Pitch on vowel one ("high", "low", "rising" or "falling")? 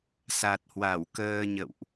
low